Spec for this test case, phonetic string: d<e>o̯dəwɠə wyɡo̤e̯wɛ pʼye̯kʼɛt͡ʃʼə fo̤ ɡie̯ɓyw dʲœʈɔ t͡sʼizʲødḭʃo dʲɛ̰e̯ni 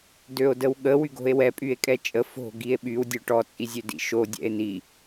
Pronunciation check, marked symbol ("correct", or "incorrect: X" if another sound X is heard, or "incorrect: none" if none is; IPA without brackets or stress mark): incorrect: ø